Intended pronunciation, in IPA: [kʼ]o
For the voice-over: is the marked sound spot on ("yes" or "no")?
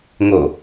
no